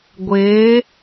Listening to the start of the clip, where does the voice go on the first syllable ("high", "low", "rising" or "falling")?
rising